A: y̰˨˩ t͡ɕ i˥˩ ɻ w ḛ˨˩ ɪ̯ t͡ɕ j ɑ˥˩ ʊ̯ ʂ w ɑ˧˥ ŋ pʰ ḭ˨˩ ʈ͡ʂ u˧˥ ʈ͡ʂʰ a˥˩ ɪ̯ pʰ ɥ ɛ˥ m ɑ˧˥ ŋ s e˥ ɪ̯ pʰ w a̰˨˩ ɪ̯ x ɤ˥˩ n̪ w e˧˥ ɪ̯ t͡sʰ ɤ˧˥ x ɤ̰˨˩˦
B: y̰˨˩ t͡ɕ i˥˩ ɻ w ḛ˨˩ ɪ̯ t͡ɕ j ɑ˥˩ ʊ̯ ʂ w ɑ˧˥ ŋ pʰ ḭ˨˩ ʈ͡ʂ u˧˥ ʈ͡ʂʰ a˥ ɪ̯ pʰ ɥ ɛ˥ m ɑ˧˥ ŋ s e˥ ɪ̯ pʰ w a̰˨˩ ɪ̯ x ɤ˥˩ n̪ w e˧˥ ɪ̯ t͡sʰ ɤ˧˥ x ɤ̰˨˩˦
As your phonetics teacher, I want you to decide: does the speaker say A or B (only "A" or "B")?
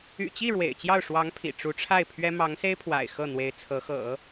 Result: A